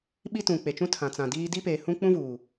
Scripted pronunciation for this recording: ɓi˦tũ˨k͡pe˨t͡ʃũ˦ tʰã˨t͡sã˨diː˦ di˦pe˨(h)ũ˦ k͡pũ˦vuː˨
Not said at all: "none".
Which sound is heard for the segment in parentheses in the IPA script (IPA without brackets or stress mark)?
h